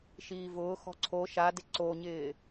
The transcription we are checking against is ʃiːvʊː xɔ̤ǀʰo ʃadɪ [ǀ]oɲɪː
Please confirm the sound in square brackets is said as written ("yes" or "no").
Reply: yes